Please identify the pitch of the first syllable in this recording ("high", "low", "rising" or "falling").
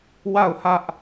falling